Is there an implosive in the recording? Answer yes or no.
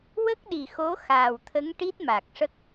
yes